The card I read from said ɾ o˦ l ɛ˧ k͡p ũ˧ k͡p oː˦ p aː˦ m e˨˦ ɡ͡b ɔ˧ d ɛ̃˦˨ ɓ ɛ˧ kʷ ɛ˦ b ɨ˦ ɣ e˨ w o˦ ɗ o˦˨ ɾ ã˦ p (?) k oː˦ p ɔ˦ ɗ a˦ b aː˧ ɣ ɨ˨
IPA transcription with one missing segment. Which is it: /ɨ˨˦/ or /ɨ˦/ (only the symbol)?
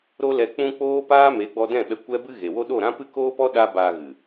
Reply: ɨ˦